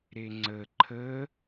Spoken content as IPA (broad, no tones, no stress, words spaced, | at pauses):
ɾeŋ͡ǀə ǃʰə